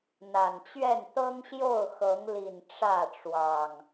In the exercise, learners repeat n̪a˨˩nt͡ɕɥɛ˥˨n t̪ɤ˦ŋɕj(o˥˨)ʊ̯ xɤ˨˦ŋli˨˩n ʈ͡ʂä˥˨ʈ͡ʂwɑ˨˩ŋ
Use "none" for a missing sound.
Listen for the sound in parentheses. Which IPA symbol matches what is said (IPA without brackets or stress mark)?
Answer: o˥˨